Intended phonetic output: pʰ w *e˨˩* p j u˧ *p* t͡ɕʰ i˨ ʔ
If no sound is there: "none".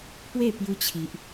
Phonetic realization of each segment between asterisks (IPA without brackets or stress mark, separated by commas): e˥˧, none